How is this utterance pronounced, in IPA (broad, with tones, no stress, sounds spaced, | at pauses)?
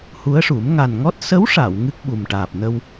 h u˧˥ ə̯ ʂ u˨˩˦ m ŋ a˨˩ n ŋ ɔ˦˥ t̚ s ə˧˥ w ʂ a˨˩˨ w ŋ ɨ˦˥ k̚ ɓ u˨˩ m ʈ aː˨˩ p̚ n ə˧ w